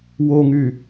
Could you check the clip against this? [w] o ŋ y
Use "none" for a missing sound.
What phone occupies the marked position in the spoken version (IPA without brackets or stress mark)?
w